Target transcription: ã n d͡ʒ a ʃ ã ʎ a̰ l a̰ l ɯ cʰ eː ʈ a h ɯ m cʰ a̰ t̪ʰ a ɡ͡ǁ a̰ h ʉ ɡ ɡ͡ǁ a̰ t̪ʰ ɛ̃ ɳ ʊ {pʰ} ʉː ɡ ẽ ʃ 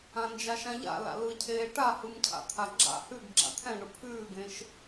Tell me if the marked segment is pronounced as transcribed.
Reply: yes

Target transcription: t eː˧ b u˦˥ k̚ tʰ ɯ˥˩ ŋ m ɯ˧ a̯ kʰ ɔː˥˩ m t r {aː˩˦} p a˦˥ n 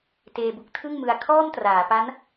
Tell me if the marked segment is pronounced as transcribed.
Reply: yes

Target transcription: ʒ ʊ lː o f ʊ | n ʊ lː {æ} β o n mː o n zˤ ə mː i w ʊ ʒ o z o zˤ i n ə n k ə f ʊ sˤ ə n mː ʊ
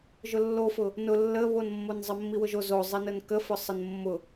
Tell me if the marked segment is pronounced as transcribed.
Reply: no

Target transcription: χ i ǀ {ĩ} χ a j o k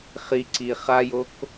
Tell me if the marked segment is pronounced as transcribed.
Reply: no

